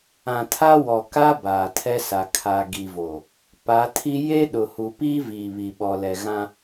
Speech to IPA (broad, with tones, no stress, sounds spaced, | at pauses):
ã˨ tʰ a˦ w ɔ˨ k a˦ b aː˨ tʰ ɛ˦ s a˨ kʰ a˨ ɡ i˨ v o˨ | p a˨˦ tʰ i˦ j e˦ ɗ ʊ˨ h u˨ p iː˦ v iː˨ β i˨ ɓ ɔ˨ l ɛ˨ ɣ ã˦